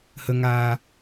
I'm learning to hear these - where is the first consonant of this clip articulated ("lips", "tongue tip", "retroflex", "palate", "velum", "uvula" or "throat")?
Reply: throat